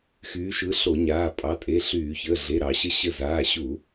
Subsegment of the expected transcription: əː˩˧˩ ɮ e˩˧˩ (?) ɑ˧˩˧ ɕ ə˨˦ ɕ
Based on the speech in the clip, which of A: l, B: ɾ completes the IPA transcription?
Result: B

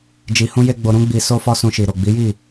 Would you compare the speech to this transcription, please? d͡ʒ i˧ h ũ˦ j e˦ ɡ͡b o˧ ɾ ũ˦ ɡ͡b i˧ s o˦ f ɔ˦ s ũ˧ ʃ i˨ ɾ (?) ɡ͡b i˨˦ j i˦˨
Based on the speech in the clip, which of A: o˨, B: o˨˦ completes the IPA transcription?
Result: A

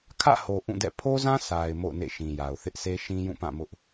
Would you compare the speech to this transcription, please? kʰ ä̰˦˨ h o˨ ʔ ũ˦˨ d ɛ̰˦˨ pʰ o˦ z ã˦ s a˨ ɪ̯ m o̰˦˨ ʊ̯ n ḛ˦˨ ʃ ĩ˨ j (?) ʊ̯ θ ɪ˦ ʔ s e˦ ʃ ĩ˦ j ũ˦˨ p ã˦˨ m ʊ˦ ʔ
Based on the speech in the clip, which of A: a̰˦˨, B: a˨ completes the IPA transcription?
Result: B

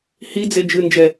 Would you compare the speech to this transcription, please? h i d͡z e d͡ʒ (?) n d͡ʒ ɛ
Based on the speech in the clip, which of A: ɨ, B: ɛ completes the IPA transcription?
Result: A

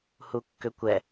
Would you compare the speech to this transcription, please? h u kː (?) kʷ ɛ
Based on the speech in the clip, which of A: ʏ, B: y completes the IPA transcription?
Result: A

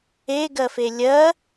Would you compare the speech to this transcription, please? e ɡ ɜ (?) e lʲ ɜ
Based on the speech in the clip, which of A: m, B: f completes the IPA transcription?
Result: B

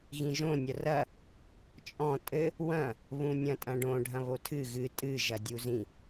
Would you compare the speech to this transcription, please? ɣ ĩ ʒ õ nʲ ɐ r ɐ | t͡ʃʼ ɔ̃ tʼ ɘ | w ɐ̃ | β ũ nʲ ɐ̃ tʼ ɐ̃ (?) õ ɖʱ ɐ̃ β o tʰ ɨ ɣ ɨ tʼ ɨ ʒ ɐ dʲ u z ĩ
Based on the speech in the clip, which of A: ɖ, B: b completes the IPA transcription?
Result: A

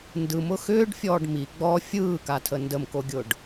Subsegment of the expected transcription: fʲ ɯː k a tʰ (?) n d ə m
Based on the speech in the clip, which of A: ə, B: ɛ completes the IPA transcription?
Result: A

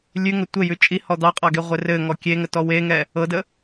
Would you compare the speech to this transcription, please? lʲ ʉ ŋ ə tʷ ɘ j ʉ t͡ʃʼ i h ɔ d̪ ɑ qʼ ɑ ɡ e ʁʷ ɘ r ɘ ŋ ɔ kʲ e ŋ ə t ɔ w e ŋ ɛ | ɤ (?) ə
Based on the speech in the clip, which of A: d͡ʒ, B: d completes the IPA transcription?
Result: B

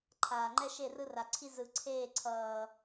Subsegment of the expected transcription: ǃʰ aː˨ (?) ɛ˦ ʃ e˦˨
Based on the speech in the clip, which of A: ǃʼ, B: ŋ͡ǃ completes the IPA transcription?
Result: B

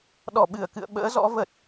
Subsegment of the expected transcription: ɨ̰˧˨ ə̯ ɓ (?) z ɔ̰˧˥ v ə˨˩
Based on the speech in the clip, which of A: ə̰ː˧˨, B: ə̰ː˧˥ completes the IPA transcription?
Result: B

